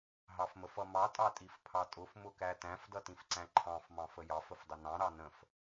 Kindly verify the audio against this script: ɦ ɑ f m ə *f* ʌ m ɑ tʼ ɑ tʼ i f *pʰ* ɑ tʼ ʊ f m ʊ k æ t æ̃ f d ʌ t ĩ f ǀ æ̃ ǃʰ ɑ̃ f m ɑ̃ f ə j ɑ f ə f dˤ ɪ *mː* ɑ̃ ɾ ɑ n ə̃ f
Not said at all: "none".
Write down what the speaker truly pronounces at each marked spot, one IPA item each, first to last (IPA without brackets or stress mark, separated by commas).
f, pʰ, n